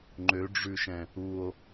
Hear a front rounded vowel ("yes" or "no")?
yes